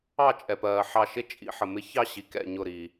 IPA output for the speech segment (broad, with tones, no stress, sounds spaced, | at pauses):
ɑ˥˩ t͡ʃʼ ɛ˩ p ɜː˩ ħ ɑ˧˩ ʃ ɪ˥˧ t͡ʃʼ ḭ˨˩˦ ħ ə˩ m ɪ˧˥ ç ɑ˥˧ ɕ i˩ k ɛ̰˧˩ ɲ ʊ˧˩ ɾ i˩